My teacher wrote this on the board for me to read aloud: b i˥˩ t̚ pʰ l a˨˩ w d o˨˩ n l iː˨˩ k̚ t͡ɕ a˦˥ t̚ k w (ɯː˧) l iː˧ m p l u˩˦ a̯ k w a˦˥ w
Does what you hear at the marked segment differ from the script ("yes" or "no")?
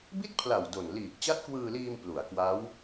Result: no